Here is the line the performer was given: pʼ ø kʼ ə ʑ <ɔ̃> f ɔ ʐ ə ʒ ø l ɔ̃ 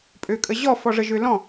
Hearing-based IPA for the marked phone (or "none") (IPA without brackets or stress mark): ɔ